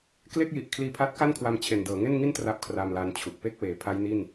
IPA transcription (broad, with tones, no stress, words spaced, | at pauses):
kle˥˩k̚ji˨˩ʔ kʰliː˧pʰa˦˥t̚ka˥˩nkʰwa˧m t͡ɕʰe˨˩ndɤː˩˦ŋe˥˩nŋi˥˩n tra˥˩p̚kʰra˧mla˧nt͡ɕʰu˨˩k̚ pe˥˩k̚weː˩˦pʰa˦˥j ni˥˩n